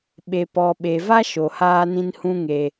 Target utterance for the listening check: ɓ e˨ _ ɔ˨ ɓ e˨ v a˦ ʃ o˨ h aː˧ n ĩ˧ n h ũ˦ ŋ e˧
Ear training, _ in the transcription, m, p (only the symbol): p